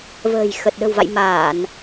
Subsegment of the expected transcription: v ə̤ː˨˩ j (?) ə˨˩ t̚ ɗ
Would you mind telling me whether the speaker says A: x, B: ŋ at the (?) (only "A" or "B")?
A